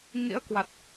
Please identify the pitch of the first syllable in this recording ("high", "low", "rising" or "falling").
rising